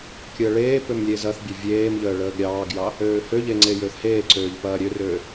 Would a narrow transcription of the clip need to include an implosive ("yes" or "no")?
no